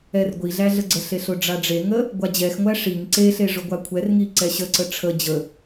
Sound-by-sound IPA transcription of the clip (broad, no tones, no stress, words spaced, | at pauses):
ɛrɡʷiɮæ ɮəɡ͡ǀəɬeɬ ʊɖ͡ʐaɖ͡ʐeŋə | ɡʷad͡ʑɛxŋʷæ ʂiŋ ǀeɬe ʐʊɡʷakʷʰɛrŋi ǀɛɕəǀə ʈ͡ʂʰə d͡ʑə